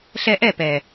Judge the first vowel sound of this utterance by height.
mid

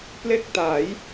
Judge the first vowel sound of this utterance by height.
mid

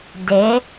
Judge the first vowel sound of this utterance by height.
mid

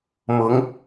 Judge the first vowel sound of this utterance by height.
high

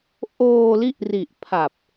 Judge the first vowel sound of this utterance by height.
mid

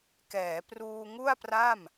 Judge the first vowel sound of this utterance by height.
mid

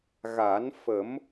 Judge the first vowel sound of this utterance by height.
low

